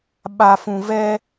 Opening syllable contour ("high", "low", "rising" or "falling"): low